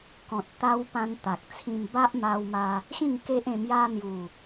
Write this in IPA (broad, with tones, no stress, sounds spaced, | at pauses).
k ɔ̃˨ t̚ t̪ a˧ w p ã˧ n t̪ a˨ k̚ t͡sʰ ĩ˧ m b a˦ ʔ m a˧ w m a˧ | ɕ ĩ˥˧ ŋ k e˦ ʔ ẽ˧ m j a˧ n̪ j u˨˩